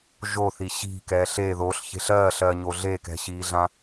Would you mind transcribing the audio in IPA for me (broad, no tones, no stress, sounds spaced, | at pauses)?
ʒ o θ i ɕ i̤ k ɛː ɬ e ð o ɬ ç e̤ ɬ ɜː ɬ ɜː ɲ o ɮ e k ɛ̤ ɕ iː ɮ ã